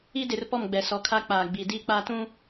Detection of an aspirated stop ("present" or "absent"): present